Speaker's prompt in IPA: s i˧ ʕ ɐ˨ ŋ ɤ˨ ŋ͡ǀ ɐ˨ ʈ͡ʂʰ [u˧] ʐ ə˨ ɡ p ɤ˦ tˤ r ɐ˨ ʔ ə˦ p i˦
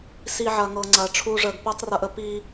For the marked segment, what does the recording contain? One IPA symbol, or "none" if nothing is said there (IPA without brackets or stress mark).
u˧